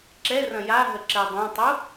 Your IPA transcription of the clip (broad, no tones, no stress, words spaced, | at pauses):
ǁɛrɐ̃ jaɦə ǁɛdˤãtˤu